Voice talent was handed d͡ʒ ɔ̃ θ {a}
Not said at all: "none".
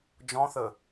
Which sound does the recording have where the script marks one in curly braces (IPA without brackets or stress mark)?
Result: ə